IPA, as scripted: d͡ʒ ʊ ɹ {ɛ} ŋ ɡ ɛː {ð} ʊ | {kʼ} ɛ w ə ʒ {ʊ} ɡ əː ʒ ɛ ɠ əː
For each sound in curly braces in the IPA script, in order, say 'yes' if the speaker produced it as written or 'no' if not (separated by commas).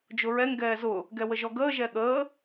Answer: yes, no, no, no